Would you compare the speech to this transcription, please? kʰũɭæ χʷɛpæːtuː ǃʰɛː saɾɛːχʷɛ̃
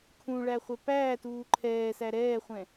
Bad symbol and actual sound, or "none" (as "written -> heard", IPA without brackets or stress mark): a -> æ